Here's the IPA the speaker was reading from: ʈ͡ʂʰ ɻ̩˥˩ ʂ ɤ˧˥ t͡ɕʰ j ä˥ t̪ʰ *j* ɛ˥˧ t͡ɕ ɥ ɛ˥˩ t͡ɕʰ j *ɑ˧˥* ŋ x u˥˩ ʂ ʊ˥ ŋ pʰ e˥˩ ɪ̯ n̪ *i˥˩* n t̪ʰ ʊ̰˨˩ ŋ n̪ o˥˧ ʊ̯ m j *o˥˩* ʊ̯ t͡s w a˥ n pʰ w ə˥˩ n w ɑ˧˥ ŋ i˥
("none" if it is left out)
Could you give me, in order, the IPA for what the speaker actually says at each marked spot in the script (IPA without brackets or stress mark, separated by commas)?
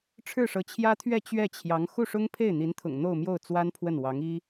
ɥ, ɑ˧˥, i˧˥, o˥˩